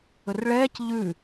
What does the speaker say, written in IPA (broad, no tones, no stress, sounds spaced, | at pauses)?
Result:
ɵ r ɭ ɛː c ʎ ʉ